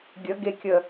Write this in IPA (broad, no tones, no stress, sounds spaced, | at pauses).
ɡʲ ə ɡ e kʲ ə